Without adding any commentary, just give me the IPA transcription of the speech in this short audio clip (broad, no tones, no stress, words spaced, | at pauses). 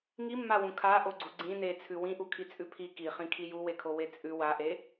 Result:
ŋimːawũ kʰaʔoɡ͡ǀu ɡ͡ǀĩ net͡sʰʉ wĩʔukʰit͡sʼʉ pʰi kiχĩkʰi juwekʰowe t͡sʼʉ waʔe